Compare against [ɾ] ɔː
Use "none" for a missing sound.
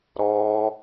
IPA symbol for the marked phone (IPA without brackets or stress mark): ɾ